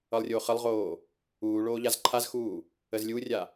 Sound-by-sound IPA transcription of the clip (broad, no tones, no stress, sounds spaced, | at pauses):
ʌ lˠ rʲ o χ ə lˠ ʁ oː | uː ɭ oː ʎ a z ǃʰ a z x uː | ə z lʲ u rʲ a